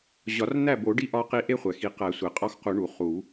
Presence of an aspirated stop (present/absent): absent